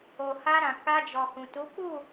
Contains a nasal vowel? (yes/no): yes